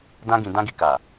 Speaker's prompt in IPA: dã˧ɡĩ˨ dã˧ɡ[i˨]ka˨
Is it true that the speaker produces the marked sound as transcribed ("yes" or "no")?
yes